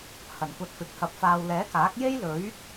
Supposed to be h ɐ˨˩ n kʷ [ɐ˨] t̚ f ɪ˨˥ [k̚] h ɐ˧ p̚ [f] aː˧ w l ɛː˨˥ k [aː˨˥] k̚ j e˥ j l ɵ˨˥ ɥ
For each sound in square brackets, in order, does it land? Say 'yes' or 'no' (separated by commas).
no, yes, yes, yes